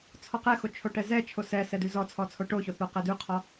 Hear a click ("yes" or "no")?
no